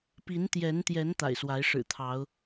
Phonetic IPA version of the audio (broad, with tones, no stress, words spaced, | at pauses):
pi˨˦nt̪jɛ˨˦nt̪jɛ˨˦n t̪a̰˨˩ɪ̯swa˨˦ɪ̯ ʂɻ̩˨˩t̪ʰɑ˨˦ʊ̯